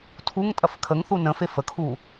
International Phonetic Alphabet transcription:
tʰuŋtʼɐf kʰəŋθu nə̃fe fəkʰu

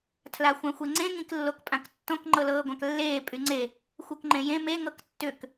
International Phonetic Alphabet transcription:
tʰlaxʷãxʷeŋ͡ǀẽ ŋĩklːokpʼãktːõk ŋ͡ǃɤlɤːɡʷãklːeː pʼyŋ͡ǀe | xʷɤkŋ͡ǃẽjẽ me ŋɤktːʏk

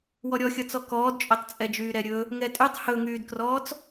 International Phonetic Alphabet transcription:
wɔɾʲɔxʲʌt͡sɔ kɔːdt͡ʃʼœtˤt͡sʼɛd͡ʒyː ɾɛɾʲɵ | ŋɛtʼytˤ hɵŋyːdkrɔːt͡s

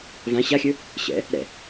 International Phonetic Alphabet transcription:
vã ɕaxʲɵ | ɕɛ̰ | ɾɛ̰

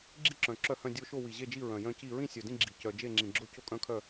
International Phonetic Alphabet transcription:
ɡ͡ǁi˥˨ǁœ̃˨˩ ǁœ˥˨hœ̃˥˨ dʲo˥˨ʃo˥˨ wi˨˩ʑe˥˨d͡ʒi˥˨ ɹœ̃˨˩jœ̃˥˨ci˥˨ ɹĩ˥˨sʲœ˨˩dĩ˥˨ ɡ͡ǁi˨˩cœ˨˩ d͡ʒe˥˨ŋ͡ǁĩ˨˩ɡ͡ǁo˥˨ co˥˨kʼœ̃˥˨kʰœ˥˨

